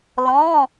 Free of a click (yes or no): yes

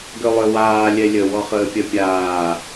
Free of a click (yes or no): yes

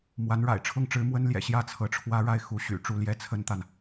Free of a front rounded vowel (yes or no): no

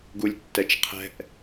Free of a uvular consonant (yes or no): no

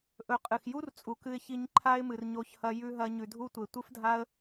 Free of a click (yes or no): no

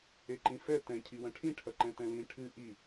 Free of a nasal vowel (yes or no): no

